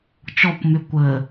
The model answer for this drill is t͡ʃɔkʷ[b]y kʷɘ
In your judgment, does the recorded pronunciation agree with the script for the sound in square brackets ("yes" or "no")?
no